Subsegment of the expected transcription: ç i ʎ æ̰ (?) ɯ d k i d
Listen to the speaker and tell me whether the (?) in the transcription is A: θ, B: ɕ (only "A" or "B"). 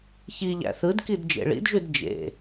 A